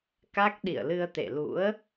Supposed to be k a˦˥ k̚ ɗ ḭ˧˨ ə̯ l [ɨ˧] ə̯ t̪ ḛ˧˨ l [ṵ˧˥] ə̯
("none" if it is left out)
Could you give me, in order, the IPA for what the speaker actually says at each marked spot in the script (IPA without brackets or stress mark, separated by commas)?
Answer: ɨ˧, ṵ˧˥